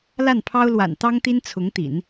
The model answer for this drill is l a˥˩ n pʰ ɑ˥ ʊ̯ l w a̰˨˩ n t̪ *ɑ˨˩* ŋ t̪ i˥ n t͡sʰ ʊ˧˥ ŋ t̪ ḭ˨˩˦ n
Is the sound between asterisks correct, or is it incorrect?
incorrect